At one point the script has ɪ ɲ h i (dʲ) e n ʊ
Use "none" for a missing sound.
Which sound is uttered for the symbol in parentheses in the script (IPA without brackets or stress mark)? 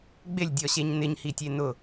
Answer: tʲ